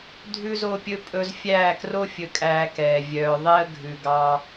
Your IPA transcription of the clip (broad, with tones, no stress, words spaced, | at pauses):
dʱʉ˦zo˦pʲɵ˦ pʼɵ˧zfʲæː˦˨kro˦ fʲɵ˧kʼæː˧kɛː˨ vʲœː˨ðˤe˦ə̯ ɡʱʉ˨ɡɑ˧